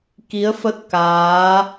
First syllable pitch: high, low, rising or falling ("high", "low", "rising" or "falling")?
rising